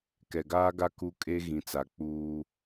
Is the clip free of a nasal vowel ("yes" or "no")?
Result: no